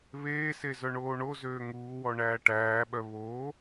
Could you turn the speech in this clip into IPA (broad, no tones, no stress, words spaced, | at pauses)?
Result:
βeːse zœɳoːɳozøː ŋuːwɔ ɳæːʈæːɓœ βoː